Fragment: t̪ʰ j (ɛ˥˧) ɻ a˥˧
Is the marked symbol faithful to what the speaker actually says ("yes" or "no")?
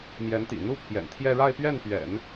yes